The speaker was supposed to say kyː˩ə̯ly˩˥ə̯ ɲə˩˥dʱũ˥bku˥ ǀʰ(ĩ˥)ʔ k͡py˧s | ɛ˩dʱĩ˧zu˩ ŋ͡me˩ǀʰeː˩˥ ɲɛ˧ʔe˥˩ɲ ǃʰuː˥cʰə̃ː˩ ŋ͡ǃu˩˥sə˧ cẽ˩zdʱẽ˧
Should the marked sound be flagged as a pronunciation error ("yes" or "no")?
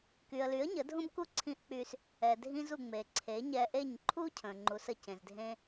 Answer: yes